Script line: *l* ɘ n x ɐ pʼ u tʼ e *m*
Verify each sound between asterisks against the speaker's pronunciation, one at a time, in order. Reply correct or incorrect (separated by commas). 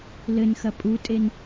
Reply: correct, incorrect